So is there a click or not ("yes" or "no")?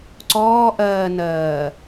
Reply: yes